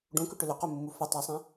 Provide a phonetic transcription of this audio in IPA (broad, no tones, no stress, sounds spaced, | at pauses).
ɖ ũ k ʏ ʈ ʏ l ʏ q u mː u f ə tˤ a sˤ ẽ